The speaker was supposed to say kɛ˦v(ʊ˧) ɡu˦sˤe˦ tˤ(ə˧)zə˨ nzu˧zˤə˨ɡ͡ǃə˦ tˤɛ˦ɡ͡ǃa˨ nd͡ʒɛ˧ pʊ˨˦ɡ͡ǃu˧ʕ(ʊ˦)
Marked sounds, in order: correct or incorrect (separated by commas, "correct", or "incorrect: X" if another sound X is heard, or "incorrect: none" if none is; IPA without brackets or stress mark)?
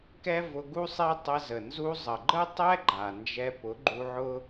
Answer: correct, correct, correct